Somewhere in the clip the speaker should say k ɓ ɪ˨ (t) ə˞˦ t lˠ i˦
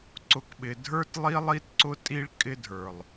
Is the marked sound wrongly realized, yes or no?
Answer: yes